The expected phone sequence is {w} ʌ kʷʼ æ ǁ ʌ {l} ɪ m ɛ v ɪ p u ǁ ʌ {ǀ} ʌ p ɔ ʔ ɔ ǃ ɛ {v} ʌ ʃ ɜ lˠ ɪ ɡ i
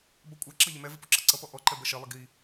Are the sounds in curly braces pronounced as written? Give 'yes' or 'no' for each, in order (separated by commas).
no, no, yes, no